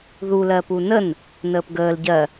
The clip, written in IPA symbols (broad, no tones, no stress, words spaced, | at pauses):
ðu lɜpunən | nəːpɡəːl ɟɜ